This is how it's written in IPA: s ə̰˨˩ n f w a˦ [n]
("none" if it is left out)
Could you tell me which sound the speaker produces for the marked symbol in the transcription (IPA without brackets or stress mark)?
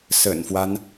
n